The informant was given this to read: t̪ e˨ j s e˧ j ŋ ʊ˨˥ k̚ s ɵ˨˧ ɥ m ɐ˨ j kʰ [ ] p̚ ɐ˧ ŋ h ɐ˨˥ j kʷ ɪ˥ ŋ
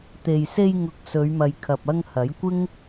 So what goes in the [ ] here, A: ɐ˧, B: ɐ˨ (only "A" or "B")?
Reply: B